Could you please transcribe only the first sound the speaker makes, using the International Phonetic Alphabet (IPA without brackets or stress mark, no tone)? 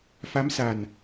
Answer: f